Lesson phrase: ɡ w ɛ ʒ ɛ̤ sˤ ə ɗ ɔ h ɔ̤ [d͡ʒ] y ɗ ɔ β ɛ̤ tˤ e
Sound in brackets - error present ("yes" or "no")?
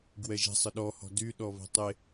yes